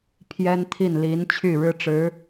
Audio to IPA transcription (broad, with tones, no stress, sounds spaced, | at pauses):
pʰ j ɛ˥ n t̪ʰ i˥˩ n l i˧˥ n t͡ɕʰ y˥˩ ɻ ɻ̩˥ ʈ͡ʂ ɻ̩˧˥